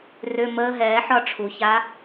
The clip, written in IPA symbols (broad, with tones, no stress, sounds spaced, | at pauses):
r ʏ˧˥˧ m əː˧˥ ɦ ɛː˨˩˦ ħ ɒ˥˨ ʈ͡ʂʰ u˩ ç a˧˥